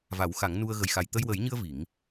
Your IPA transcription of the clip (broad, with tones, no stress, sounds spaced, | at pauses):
v a˨˩˦ w x a˨˩˦ ŋ n u˧ ə̯ ɣ ə˨˩ j x a˨˩ j t̪ ə˧ j w ə˨˩˦ j ɲ ɨ˧ ə̯ v i˨˩˦ ŋ